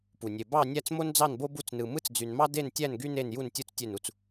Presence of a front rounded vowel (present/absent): present